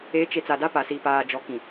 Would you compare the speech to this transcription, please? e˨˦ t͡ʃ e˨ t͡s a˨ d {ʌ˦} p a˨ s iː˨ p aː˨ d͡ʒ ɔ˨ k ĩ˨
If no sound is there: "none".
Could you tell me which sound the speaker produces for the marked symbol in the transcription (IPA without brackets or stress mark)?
a˦